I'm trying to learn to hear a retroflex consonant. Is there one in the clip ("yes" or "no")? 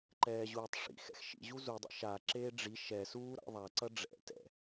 yes